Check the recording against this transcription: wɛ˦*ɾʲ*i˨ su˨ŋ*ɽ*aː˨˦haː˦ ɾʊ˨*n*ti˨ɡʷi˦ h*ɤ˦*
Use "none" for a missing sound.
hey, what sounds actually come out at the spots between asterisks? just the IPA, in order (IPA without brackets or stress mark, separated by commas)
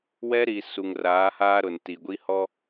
ɾ, r, n, ɔ˦